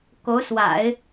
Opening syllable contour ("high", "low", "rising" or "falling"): rising